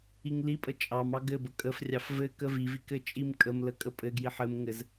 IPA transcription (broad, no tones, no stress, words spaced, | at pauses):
iŋlipʼə t͡ʃʼɑmɑ ɡɘbə kʼəfrʲɑf vɘ kəvivik ɘt͡ʃʼimkʼəmlə kʼəpʼɘɡjiħ ɘmŋɘz